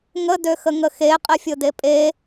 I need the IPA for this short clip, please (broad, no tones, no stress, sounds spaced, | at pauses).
ŋ ə d ø x ə ŋ ə x e qʼ ɪ fʲ ʊ d e pʼ e